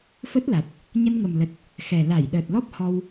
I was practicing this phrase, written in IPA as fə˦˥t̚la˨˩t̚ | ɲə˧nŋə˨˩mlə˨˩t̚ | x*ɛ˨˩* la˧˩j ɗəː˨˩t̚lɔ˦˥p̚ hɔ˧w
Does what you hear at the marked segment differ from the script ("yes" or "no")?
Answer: no